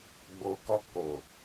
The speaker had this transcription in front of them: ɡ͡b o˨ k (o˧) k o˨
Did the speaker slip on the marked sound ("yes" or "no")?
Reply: yes